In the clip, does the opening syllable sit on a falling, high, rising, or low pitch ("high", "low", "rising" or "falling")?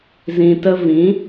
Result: low